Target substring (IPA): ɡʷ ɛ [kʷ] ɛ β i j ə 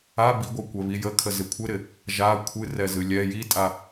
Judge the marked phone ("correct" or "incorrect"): correct